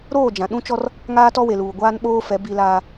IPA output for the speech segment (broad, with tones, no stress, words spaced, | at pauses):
ɾoː˦˨d͡ʒã˨ɗũ˦t͡ʃɔ˦r | ŋaː˦tɔ˦we˨luː˨ ɡʷaː˦nɓoː˦fɛ˨˦ bi˦laː˦